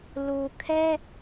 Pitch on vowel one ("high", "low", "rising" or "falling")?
low